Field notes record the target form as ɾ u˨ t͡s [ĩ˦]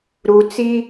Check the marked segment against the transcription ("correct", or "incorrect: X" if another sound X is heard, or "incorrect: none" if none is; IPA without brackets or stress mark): incorrect: i˦